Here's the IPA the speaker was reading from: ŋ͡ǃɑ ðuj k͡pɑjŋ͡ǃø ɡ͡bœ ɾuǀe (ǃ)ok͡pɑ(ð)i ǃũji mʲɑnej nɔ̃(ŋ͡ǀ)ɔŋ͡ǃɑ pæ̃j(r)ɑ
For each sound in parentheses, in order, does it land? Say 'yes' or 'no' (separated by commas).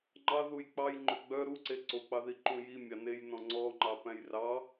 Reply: no, yes, yes, yes